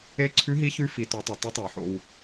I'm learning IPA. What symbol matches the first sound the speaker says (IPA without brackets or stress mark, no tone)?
e